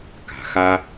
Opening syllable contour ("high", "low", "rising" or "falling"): low